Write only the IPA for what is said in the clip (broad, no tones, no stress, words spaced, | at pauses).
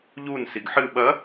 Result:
ʎun siɡħɨ ɓɐ